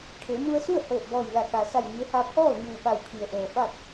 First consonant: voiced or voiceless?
voiceless